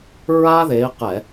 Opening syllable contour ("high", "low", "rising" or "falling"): high